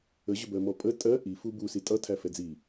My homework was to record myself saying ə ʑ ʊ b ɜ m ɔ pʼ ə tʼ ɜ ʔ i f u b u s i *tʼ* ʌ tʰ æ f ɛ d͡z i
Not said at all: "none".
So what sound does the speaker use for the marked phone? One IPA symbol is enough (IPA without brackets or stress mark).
tʼ